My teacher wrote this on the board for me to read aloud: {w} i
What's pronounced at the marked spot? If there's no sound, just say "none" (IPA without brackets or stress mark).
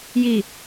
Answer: j